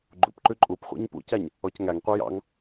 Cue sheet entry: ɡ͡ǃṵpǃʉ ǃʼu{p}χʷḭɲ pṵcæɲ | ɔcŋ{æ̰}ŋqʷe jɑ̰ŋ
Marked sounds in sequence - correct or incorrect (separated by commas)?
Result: correct, incorrect